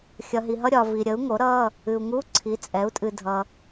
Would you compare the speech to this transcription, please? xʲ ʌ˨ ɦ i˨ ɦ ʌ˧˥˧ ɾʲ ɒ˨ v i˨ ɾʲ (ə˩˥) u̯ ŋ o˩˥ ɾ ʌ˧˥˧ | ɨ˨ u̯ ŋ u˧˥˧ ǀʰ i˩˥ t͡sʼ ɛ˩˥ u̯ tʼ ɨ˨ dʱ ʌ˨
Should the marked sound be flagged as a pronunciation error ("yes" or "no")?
no